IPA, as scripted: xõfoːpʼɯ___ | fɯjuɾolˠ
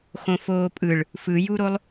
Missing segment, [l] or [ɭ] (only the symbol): ɭ